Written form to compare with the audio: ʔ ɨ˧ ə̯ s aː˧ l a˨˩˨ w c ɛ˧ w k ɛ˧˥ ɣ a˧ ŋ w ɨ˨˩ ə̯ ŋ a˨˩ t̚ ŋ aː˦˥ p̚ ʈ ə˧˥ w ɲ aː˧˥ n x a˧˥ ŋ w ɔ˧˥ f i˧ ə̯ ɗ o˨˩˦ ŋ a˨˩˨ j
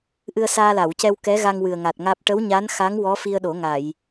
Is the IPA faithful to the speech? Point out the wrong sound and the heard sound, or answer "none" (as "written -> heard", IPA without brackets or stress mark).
none